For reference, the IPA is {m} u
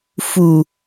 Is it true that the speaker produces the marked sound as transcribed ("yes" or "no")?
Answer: no